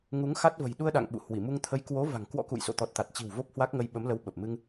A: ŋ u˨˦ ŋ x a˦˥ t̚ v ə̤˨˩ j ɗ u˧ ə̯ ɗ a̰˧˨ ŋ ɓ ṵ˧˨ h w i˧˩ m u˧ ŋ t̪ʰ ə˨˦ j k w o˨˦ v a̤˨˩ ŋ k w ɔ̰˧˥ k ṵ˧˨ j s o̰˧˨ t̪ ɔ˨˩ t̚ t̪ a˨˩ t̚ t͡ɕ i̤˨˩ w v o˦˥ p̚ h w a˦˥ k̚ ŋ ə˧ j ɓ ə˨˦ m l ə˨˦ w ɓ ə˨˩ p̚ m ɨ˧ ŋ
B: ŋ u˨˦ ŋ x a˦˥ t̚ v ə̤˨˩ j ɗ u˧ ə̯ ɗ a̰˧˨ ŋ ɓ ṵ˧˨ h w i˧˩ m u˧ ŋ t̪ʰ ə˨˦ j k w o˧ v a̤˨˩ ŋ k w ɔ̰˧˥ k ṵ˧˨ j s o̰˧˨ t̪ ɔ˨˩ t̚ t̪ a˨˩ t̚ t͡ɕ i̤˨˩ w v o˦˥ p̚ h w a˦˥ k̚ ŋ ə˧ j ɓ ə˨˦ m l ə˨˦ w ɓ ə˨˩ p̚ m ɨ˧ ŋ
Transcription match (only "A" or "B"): A